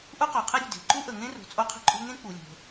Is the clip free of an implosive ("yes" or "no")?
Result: yes